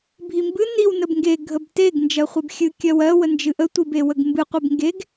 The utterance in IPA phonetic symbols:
bʱimbɨ niw nəbŋɡe ɡʱəbteɡ nd͡ʒɜχʷebxʲɨ kʲɜwɜ wənd͡ʒɨʔə tʷibewəɡmbɨ qʷebŋɡeɡ

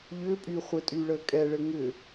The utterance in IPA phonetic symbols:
ʎʏːpʼyː χʷɘtʼyːɭəː kʼɛɭɘ ŋʏ

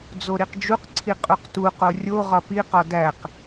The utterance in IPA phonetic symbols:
d͡zoɾiqd͡ʒuqǀʰi qʼuqtuqo rʲo ʁɒpiqɒ dæq

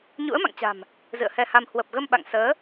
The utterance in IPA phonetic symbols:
ɲṵ˧˥ə̯ma̰˧˨ŋt͡ɕa̤˨˩m | zɨ̰˧˨ə̯hɛ˧ha˧m hwə˨˩p̚ɣə˧m ɓa̰˧˨ŋsəː˨˦

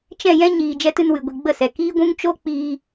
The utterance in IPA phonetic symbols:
t͡ʃɛ̃˦˨jɛ̃˦ ɲiː˨ d͡ʒɛ˧tɨ˧n wɨ˨ ɡʷi˨ɡ͡bə˦˨sɛ˨ kiː˦ɡʷũ˦ŋ t͡ʃo˦k͡piː˧

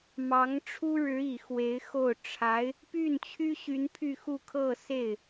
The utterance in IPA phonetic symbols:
mɑ˧˥ŋʈ͡ʂʰu˥ɻɻ̩˧˥ i˨˩xwe˧˥ɪ̯ xo˥˩ʊ̯ ʈ͡ʂʰa˧˥ɪ̯ | py˥˩nt͡ɕʰy˥ɕy˧˥n pʰy˥˧xu˥˧ kʰɤ˥˧se˥˩ɪ̯

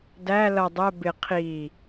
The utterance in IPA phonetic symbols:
dæ lʌ dˤɜ bɪ qʰi

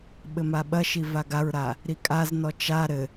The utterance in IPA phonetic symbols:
ɓɘmaɓɐʃi vaɡaɹɾa | ɾikʼaznɔ t͡ʃa ɾɘ

